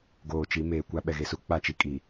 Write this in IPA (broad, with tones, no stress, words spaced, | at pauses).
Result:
ɡoː˨t͡ʃi˨˦meː˨kʷa˦ ɓɛ˨ɣe˨su˦ k͡pa˦˨t͡ʃi˦kʼi˨